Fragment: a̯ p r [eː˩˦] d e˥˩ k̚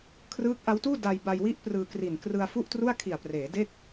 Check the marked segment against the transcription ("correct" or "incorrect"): correct